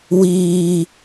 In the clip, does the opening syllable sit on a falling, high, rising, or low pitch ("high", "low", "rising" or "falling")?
low